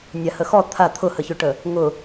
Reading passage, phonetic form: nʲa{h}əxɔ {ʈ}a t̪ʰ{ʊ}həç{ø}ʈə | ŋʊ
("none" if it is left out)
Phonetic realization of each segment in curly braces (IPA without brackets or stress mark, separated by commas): h, t̪ʰ, ʊ, ø